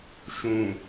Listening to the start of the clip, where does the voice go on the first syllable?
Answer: low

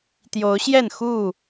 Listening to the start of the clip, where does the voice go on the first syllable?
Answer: rising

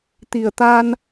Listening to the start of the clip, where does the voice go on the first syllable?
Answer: low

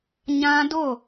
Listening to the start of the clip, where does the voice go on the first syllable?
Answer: high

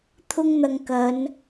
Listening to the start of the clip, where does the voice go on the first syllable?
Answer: high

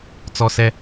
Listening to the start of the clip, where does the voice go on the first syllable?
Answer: high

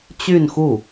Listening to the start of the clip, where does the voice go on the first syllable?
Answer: falling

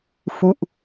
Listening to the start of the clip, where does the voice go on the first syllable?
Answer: falling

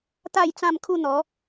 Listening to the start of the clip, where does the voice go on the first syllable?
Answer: falling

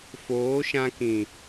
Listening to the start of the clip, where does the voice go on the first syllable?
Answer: rising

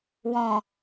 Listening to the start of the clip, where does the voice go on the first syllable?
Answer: low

